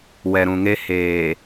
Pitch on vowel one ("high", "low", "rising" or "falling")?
low